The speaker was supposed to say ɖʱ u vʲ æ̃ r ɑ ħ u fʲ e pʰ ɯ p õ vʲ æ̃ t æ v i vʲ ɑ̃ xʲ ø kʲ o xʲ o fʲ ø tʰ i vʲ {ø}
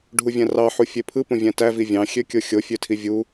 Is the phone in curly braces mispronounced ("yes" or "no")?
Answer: yes